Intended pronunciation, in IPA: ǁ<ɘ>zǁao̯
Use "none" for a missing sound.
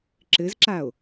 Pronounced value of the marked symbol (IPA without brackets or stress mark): ɘ